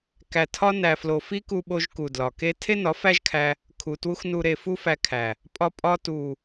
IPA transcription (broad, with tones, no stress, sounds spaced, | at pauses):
k æ˨ tʰ ɒ˧ n æ˨ f l o˨ f i˦ k u˧ ɓ o˧ ʒ k u˨ d l ɒ˨ k e˦ tʰ e˦ n ɒ˨˦ f æ˦ ʒ kʰ æ˧ | kʰ u˨ t w u˧ x n u˨ ɾ e˨ f u˦ f æ˧ kʰ æ˨ | pʼ ɒ˧ pʼ ɒ˧ t u˨